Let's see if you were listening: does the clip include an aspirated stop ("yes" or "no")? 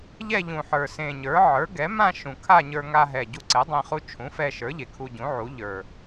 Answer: yes